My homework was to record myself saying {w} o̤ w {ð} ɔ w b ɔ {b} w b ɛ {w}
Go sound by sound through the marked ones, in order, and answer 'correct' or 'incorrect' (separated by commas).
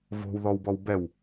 incorrect, correct, incorrect, correct